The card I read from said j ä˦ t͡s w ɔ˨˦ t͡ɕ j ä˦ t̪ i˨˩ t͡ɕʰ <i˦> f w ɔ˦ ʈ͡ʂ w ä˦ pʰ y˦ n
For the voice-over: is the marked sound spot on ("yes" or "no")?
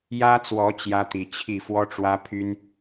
no